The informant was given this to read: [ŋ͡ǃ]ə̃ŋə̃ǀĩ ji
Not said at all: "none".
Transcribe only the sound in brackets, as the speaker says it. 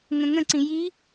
ŋ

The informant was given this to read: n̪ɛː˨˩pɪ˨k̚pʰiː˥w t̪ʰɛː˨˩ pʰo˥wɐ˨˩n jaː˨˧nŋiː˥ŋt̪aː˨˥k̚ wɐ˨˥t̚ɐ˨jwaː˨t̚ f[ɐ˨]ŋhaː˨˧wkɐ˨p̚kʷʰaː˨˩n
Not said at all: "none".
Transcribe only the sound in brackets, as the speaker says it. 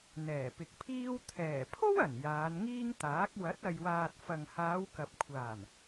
ɐ˨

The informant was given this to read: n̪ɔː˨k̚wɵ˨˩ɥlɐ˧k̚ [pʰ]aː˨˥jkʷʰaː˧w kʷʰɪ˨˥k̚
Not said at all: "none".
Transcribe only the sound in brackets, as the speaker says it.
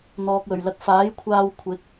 f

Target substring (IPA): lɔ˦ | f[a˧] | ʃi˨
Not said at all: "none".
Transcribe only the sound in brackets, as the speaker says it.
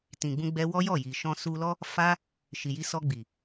a˧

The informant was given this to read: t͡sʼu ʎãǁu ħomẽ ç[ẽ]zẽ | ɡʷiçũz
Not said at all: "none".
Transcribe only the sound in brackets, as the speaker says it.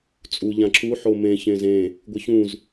ẽ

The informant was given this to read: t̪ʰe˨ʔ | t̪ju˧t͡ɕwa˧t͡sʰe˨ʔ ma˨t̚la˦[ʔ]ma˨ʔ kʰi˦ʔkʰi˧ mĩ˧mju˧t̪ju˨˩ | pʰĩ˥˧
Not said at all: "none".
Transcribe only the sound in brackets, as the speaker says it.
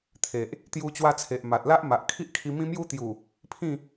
ʔ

